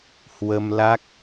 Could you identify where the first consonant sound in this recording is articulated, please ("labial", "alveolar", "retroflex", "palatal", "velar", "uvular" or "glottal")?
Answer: glottal